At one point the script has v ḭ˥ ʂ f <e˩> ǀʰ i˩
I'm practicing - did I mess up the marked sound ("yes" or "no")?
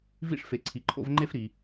no